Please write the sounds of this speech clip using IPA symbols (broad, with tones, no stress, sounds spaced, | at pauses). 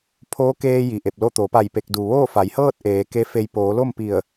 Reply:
pʰ oː˧˥ k eː˧ j i˩ ʔ e˧˩ p̚ l o˥˨ t̪ o˩˧ p a˧˩ j p e˧˩ k̚ d u˩ ʋ oː˥˨ f a˩˧ j h ɤː˥˨ t̚ ʔ eː˩˧ k e˧˥ f e˧ j p oː˩˧ l o˥˨ m p i˧˩ ə̯